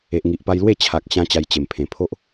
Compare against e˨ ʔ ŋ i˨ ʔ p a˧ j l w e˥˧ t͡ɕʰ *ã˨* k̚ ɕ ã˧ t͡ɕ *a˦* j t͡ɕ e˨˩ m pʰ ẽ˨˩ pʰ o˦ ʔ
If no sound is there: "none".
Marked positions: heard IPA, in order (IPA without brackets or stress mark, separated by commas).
a˨, a˧